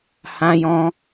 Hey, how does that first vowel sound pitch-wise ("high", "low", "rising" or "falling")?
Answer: high